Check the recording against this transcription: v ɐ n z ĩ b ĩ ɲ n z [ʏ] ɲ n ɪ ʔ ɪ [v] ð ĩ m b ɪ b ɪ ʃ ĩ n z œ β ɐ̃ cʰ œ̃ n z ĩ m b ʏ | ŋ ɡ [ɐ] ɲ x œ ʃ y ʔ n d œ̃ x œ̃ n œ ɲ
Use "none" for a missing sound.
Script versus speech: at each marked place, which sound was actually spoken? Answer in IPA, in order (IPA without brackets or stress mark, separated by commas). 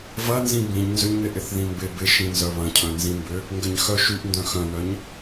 ʏ, θ, ɐ